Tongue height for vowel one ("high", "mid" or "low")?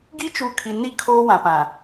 high